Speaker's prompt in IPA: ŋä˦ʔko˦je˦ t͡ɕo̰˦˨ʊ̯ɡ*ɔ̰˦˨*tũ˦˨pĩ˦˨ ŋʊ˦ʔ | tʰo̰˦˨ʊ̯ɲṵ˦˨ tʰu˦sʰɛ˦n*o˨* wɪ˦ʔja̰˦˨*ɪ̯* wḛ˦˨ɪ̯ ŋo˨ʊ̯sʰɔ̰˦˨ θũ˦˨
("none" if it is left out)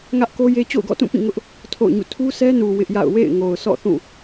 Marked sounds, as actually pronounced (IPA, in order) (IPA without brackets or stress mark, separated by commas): ɔ̰˦˨, u˨, ʊ̯